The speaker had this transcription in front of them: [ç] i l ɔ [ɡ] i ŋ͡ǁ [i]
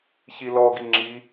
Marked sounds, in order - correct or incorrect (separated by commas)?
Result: correct, correct, correct